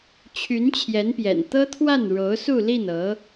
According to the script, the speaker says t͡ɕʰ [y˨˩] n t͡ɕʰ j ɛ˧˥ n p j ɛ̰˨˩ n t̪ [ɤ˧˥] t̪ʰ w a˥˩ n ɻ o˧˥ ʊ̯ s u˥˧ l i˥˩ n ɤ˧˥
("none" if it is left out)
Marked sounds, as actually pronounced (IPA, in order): y˧˥, ɤ˥

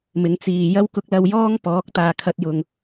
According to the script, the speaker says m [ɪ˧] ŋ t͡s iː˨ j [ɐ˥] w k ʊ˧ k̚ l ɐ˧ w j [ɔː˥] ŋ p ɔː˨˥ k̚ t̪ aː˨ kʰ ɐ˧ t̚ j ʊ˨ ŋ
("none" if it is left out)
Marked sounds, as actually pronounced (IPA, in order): ɪ˨˧, ɐ˥, ɔː˥

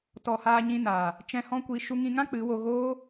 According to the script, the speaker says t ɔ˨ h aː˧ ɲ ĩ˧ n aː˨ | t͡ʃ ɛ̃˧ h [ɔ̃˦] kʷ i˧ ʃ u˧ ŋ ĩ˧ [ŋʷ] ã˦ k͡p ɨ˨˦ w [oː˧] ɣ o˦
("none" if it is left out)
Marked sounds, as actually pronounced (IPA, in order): ɔ̃˦, ŋ, o˧

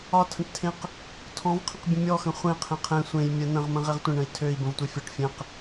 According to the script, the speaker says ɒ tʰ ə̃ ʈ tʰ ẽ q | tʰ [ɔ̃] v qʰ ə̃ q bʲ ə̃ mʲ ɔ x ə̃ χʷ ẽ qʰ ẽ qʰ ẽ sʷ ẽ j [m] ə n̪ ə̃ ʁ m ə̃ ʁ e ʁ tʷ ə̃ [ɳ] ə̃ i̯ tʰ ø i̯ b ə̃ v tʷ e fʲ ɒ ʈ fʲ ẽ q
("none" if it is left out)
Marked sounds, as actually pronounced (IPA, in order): ɔ̃, mʲ, ɳ

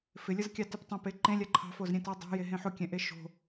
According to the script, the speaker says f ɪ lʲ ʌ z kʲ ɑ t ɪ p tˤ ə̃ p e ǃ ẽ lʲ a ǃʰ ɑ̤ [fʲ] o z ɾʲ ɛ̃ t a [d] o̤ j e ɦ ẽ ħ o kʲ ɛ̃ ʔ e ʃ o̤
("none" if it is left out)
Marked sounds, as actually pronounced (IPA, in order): f, dˤ

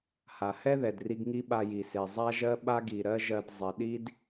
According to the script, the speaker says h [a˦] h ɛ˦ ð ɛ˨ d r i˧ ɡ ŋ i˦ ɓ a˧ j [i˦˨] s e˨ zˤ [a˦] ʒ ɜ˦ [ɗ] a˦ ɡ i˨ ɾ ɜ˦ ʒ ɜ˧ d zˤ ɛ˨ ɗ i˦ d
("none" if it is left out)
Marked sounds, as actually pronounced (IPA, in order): a˨, i˨, a˦, ɓ

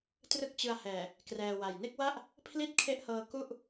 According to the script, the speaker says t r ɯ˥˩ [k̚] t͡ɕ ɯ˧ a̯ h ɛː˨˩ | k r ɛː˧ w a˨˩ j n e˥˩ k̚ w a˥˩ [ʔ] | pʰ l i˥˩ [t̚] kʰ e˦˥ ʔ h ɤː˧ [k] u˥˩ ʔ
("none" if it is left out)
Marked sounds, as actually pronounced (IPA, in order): k̚, ʔ, t̚, k

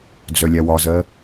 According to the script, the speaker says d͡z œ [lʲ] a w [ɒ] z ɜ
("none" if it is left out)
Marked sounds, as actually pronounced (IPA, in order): lʲ, ɒ

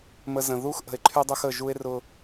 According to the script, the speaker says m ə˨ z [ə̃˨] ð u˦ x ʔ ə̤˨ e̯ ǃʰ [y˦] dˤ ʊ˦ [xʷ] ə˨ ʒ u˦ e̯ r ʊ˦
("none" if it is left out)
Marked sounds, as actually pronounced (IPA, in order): ə̃˨, y˦, x

